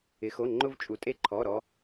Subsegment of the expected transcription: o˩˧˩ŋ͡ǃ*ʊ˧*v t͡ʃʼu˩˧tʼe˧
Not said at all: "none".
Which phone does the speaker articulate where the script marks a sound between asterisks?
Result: ʊ˧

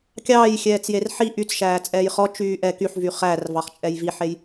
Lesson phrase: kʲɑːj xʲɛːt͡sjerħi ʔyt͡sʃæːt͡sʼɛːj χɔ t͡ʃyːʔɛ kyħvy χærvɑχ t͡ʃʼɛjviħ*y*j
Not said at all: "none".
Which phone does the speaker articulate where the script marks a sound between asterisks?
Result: e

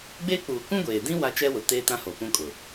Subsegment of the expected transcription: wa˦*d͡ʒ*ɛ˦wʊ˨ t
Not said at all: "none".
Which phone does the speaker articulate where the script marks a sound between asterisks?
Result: t͡ʃ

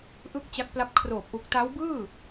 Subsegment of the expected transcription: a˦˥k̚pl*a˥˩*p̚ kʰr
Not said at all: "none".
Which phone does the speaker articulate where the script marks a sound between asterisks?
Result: a˦˥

